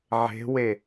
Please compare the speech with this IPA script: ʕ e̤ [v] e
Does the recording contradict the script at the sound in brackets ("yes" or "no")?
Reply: yes